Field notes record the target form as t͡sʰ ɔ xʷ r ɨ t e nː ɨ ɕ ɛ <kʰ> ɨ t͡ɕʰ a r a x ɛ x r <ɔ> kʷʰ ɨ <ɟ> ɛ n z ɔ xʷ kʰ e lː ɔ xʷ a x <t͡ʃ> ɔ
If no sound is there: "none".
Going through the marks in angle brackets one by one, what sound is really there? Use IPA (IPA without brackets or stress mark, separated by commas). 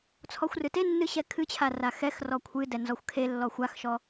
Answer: kʰ, ɔ, d, ʃ